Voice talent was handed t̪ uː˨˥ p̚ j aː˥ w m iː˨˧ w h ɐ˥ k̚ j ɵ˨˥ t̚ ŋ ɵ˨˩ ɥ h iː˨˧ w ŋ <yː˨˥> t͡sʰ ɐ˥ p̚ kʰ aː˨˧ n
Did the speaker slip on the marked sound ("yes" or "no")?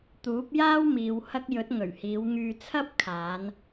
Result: yes